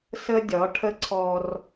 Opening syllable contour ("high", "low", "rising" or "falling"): high